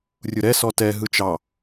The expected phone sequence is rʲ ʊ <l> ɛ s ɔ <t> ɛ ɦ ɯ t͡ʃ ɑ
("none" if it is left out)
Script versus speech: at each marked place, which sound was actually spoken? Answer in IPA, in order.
ɾ, t

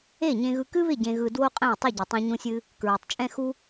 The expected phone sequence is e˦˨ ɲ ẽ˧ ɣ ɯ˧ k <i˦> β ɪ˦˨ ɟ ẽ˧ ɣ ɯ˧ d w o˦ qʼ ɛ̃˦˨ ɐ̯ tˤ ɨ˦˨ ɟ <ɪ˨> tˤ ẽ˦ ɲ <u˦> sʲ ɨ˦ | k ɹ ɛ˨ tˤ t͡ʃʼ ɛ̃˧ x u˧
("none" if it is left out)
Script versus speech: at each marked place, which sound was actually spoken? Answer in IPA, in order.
ɨ˦, ɪ˨, ũ˦

